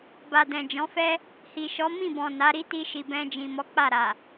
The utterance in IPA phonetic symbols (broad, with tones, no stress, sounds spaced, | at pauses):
b a˨ d ɛ̃˨ d͡ʒ ɔ̃˨˦ f ɛ˦ | h i˨ ʃ ɔ˨˦ m ĩ˦˨ b ɔ̃˨ n a˨˦ ɾ i˦ t i˧ ʃ i˨ b ɛ̃˧ d͡ʒ ĩ˨ m ɔ˨˦ k͡p a˦˨ ɾ a˨